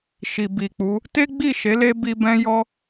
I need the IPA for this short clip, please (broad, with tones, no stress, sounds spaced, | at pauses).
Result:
ʃ i˨ b i˨ k͡p u˨˦ | t e˦ ɡ͡b i˦˨ ʃ e˨˦ l e˦ b i˧ b ɛ̃˦ j ɔ˦